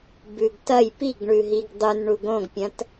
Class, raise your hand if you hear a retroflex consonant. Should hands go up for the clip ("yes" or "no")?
yes